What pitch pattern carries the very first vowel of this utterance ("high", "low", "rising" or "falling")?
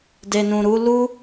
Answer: low